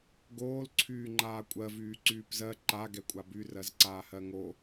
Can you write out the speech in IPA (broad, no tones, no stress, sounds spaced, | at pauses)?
ɡ oː l ǀʰ yː ŋ͡ǃ aː kʷʼ ɜ v yː ǀ yː p z ɜ ǃ a ɡ ɛ kʷʼ a b y r ɜ z ǀ aː h ɜ ŋ o